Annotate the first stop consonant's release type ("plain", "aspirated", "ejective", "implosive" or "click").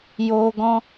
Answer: plain